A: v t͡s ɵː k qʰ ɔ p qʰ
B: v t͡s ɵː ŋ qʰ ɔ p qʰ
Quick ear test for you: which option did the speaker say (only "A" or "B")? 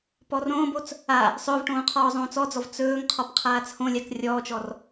B